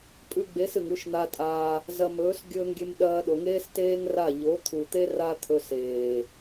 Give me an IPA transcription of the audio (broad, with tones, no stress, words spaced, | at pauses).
pʼʉ˧ɡ͡be˨˦s ɨ˨ŋʉ˧ʃn̪a˧tʼa˧ | zɐ˧mɵː˨˦s ɡʲɵː˧ŋɡʲe˧mɗɐː˧ ɗo˨ŋeː˦steː˦ŋra˦˨ ʎo˨˦t̪ʰu˨t̪e˦ ra˦ t̪ʰɵ˧seː˨